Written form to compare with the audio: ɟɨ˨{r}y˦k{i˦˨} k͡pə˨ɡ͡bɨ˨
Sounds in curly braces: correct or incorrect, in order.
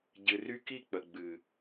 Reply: correct, correct

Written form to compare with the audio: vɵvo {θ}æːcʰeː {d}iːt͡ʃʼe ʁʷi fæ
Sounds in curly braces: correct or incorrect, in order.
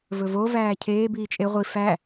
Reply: incorrect, incorrect

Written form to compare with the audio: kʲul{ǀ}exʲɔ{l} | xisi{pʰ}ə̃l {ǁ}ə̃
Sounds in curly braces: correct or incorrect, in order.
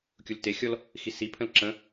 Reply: incorrect, correct, correct, correct

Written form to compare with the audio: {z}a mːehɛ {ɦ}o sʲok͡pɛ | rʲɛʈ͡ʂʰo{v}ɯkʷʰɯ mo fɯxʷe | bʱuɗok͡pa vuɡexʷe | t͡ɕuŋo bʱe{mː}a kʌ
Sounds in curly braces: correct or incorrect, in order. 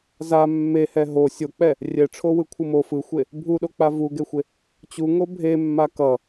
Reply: correct, correct, incorrect, correct

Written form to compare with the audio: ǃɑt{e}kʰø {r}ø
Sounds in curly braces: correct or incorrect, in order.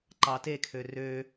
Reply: correct, correct

